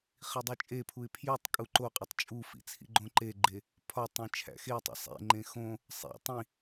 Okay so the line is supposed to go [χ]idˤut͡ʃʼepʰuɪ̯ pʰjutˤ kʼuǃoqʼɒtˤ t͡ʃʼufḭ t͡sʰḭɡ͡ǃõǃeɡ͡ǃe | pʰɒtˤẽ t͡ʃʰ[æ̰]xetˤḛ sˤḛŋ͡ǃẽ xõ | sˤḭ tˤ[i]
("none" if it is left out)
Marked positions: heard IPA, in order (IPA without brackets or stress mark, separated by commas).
χ, æ̰, ĩ